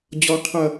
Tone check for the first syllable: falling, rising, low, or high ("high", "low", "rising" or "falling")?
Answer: high